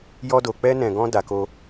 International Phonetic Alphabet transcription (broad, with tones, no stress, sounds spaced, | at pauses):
j ɔ˧ d o˨ k͡p ɛ˧ n ɛ̃˨ ɡ ɔ̃˧ d a˨ k o˧